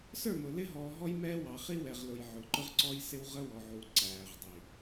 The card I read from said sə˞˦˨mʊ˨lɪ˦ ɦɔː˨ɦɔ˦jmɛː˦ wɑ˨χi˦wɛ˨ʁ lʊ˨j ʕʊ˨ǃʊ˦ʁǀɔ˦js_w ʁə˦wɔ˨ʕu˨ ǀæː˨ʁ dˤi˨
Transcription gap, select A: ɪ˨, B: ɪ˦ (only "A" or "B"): B